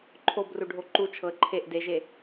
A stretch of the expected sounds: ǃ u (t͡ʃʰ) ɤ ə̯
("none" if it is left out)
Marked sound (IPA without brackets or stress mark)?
t͡ʃʰ